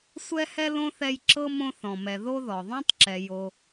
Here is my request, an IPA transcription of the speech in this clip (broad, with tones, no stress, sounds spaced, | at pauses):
sʷ ɛ˦ h ɛ˦ l õ˥ θ ɛ˦ j ǁ ɤ˥ m õ˦ θ ɔ̃˩ m ɛ˩ ð o˦ ð ɔ˩ ðˤ õ˥ tˤ ǁ ɛ˨ j o˨